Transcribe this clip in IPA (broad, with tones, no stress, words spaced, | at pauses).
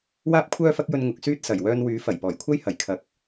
waː˥p̚kʷʰœː˥fɐ˥k̚jɵ˧n ŋʊ˨k̚syː˥t̚ sɐ˨˩jwœː˧nwyː˨˥ fɐ˨˩jpɔː˨˩j kʷʰɐ˥jhɐ˨˩j kʰɐ˨k̚